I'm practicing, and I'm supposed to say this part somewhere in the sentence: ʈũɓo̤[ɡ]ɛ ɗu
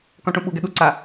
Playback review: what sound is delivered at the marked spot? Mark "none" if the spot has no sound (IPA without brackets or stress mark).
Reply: ɡ